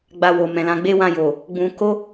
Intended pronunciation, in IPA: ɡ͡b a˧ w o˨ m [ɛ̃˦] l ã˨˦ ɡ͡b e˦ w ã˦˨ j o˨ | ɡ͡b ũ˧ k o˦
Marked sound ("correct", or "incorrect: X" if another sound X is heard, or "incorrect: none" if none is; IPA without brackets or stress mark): incorrect: ɛ̃˨